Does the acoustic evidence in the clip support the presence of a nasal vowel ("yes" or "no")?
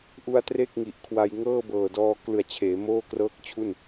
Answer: no